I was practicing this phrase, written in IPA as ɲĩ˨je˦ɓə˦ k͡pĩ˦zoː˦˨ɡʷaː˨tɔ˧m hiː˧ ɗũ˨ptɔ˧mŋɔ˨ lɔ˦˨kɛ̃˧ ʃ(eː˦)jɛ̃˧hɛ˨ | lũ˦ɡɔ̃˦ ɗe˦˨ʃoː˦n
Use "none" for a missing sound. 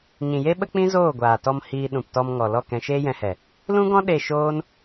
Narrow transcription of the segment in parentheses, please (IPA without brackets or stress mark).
eː˦